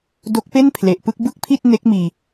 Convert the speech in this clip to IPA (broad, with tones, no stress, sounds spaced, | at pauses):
d o˦˥ k̚ p e˥˩ n pʰ l e˨˩ ʔ p ɯ˥˩ k̚ b ɯ˥˩ k̚ pʰ i˥˩ t̚ n e˦˥ k̚ m iː˧